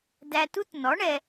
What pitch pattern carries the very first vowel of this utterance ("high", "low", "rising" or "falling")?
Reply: low